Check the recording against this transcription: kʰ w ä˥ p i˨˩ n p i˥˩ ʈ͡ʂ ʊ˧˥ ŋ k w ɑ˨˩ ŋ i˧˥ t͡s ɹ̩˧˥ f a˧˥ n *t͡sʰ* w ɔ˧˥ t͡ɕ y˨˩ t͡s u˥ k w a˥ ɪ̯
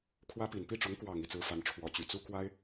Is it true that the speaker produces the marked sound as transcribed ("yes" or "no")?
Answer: no